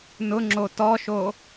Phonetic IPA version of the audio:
n ʊ ŋ͡ǁ o t ɔ ʃ o

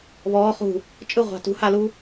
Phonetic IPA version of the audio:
β ɔː χ ṳ | t͡ʃʼ ɯ ʁʷ a̤ t ṳ h a l u

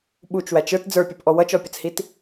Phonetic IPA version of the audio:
ɓ u t͡ʃ w æ t͡ʃ ə˞ t d͡z ə˞ pʲ ə˞ p ʔ ɔ w ʌ t͡ʃ ɔ pʲ ə t͡s h i t

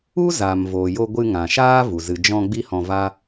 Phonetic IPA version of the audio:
u˦ z aː˨ m v oː˨ j o˧ ɡʷ ɨ˧ ŋ ã˨ ʃ aː˦ v u˨ z ɨ˨ d͡ʒ ɔ̃˧ ɡ͡b i˦ h ɔ̃˧ v a˦

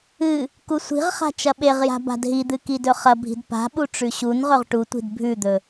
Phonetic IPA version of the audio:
ɨ | k u sʷ i̤ ʁ χ a̤ t͡ʃ ɐ ɓ e ʁ j a̤ b a̤ d ɦ i d̪ ɨ k i d ɵ χ ɐ bʱ i̤ d p a̤ ɓ u ʈ͡ʂ ʉ ɕ u n ʁ ɵ ʁ ʈ u tʷ i̤ d bʱ ʉ d̪ ɵ

